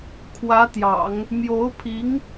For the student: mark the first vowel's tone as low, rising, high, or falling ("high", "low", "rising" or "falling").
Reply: rising